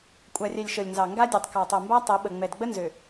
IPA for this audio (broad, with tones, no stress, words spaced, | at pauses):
kʷʼa˨rʲɛ˨lʲ ʃɤ˨lʲnzɑ˨ ŋɡa˦dʲɛ˨tˤ kɑ˨tˤɤ˨mba˦ tˤe˨˦ɓə˨ ŋ͡mɛ˨dɡ͡bə˦ nzø˨